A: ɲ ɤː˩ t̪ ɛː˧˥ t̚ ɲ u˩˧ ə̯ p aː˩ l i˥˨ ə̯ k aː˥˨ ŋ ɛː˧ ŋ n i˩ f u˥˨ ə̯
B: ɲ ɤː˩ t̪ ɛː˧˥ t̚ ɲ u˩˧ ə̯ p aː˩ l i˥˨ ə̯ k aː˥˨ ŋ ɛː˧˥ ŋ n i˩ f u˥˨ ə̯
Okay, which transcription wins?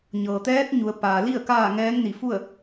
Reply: B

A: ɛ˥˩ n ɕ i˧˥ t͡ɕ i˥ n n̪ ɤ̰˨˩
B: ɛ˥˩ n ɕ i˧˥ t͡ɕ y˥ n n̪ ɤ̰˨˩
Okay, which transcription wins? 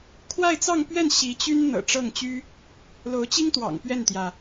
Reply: B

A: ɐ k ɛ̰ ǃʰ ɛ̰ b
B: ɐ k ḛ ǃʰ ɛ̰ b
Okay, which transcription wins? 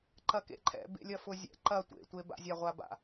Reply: B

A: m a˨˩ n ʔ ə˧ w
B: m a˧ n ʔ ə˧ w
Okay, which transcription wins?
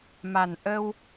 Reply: A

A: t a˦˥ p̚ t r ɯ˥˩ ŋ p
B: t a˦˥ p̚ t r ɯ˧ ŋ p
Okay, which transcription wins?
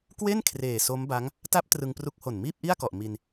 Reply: B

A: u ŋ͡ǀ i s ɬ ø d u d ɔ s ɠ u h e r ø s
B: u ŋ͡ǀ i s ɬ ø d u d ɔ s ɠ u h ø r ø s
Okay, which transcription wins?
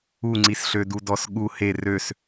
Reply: A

